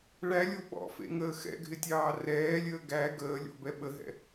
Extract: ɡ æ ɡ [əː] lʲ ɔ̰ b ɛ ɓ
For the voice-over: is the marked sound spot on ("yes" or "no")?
yes